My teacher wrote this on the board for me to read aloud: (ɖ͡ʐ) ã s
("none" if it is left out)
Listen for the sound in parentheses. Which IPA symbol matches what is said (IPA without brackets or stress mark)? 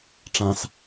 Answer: ʈ͡ʂ